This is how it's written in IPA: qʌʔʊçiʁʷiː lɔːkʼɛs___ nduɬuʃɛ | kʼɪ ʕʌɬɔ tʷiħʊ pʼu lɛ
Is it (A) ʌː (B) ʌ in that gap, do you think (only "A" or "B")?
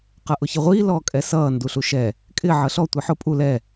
A